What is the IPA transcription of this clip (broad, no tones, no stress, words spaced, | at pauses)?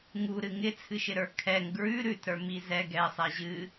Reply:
ŋuɾɨ ŋɪt͡sʰɨʃɪɾə˞ kʰɛŋ ɡɹʉ ɾʉtɾə˞mi zɛ ɡɛsˤɛ ʑɨ